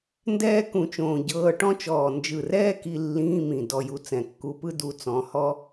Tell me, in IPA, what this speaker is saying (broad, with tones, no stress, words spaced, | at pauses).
ndɛː˥ kũ˧t͡ʃõː˧ɟɤː˧˥˧ ʈɔ̃˥t͡ʃɔː˧˩ nd͡ʒɯ˧˩rɛː˥ki˧ lːĩː˧˥˧mĩ˧˩ dɔ˧ju˧ t͡sɛ̃˧˩kːu˧pɯ˥ du˥t͡sɔ̃˧˥˧ hɔ˥